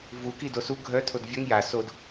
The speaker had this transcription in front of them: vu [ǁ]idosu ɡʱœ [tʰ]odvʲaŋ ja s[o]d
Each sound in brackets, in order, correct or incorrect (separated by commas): incorrect, correct, correct